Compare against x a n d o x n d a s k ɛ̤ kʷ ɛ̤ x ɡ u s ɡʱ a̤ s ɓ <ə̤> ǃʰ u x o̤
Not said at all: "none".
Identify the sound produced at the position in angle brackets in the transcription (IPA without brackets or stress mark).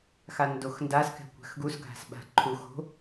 a̤